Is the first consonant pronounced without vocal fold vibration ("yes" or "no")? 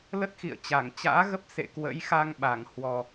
no